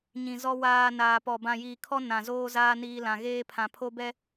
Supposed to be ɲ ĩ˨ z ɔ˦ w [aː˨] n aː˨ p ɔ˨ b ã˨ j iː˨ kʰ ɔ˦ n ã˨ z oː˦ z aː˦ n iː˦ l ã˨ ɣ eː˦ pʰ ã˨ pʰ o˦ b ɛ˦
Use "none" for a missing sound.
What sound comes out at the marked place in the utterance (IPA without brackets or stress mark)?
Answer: aː˨